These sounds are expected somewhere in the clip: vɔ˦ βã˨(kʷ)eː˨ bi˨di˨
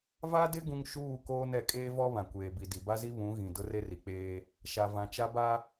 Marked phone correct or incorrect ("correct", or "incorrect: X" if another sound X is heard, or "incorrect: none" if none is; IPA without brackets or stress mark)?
correct